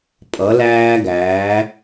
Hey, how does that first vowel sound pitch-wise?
rising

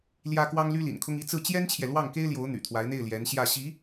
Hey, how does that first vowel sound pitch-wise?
high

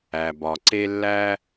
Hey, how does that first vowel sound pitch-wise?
low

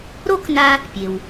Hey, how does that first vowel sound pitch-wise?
high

